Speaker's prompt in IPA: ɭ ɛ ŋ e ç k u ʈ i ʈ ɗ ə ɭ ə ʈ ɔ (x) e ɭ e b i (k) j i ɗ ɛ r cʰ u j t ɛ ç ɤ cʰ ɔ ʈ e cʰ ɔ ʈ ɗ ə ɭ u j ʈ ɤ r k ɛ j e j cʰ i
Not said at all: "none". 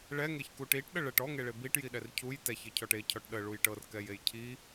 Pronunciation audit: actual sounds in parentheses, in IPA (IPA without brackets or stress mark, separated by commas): ŋ, ʈ